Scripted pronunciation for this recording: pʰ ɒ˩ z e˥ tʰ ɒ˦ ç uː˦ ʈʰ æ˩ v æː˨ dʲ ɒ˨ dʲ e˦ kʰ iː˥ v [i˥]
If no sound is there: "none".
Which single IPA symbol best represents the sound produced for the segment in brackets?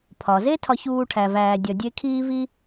i˥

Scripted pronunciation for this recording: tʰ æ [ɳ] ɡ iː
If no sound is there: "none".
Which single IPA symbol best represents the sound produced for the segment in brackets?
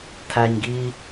ɲ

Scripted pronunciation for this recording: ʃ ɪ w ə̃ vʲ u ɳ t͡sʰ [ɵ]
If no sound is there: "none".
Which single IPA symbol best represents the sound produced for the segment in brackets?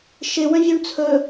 ɵ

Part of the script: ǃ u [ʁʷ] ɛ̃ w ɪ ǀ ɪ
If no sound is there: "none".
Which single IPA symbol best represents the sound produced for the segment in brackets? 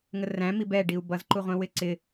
ʁʷ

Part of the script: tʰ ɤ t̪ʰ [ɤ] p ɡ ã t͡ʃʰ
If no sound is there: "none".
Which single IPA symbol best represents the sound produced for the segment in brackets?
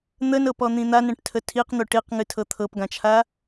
ɤ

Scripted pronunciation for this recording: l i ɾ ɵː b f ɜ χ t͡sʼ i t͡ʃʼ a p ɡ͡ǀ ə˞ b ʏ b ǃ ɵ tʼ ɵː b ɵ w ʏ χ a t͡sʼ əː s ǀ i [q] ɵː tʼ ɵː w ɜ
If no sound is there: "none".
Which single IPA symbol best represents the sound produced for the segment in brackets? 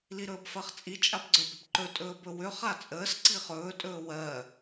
χ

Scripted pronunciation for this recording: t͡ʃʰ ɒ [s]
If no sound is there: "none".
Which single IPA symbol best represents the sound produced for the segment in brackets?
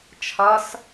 s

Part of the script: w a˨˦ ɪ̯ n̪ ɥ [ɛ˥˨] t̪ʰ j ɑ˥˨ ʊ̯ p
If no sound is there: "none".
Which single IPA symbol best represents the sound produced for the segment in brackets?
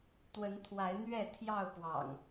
ɛ˥˨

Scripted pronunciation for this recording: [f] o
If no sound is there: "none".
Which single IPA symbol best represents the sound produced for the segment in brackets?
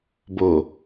b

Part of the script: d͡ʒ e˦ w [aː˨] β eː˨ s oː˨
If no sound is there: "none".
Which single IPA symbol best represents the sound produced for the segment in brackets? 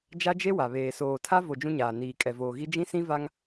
a˨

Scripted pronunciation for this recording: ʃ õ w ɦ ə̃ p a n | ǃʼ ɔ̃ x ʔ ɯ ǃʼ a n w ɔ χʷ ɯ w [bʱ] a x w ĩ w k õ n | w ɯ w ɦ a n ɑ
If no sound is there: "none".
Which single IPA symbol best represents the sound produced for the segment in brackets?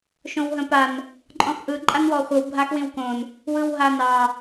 bʱ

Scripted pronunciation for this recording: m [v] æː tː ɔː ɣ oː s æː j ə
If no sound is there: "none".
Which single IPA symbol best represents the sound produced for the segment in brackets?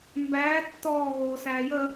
b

